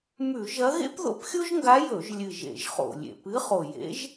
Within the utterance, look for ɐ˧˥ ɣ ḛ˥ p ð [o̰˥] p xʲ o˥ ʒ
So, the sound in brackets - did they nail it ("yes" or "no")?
no